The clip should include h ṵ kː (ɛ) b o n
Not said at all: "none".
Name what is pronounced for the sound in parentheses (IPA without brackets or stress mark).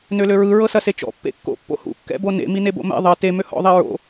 ɛ̰